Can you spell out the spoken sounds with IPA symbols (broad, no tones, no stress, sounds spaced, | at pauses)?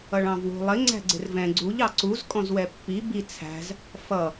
ʌ ɭ ɑ̃ v w ṳ lˠ ɪ ŋ͡ǀ æ̤ ɡ͡ǀ ɪ r v ɛ̃ ɡ͡ǀ u ʎ ɑ ǀ u z kʼ ɔ̃ z w ɛ pː i b i t͡sʰ æ̤ z | f ʌ